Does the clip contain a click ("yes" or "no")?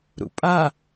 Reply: no